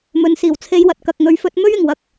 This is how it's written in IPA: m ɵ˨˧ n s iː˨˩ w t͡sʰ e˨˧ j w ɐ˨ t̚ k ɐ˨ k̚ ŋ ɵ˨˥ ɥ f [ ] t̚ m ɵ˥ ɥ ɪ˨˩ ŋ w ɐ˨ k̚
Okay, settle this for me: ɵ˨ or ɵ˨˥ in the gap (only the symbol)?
ɵ˨˥